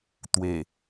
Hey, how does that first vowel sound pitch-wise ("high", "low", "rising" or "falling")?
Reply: low